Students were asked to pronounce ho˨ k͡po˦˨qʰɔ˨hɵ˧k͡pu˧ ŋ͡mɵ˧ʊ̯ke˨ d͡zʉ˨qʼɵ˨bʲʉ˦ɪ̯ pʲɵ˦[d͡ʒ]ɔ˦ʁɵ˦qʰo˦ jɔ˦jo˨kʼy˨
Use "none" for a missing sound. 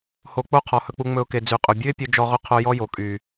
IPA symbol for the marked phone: d͡ʒ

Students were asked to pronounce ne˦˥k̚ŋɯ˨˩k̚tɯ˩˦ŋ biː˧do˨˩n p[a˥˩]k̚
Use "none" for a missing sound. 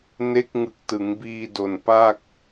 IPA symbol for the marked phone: a˥˩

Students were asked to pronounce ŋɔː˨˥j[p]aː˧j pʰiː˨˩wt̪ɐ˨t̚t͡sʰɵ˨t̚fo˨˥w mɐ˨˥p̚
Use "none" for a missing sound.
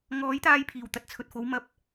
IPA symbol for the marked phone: t̪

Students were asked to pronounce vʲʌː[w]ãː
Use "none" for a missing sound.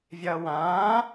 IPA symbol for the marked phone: w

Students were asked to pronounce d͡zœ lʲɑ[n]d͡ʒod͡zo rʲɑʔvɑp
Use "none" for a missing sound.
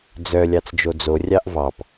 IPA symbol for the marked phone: t͡s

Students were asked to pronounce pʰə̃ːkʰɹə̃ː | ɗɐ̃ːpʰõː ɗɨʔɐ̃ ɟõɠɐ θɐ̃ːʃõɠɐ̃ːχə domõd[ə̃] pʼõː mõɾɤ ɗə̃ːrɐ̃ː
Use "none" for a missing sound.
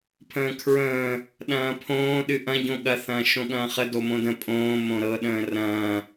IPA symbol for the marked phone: ə̃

